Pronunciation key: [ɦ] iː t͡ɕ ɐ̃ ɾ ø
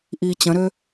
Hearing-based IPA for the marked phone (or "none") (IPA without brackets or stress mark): ʔ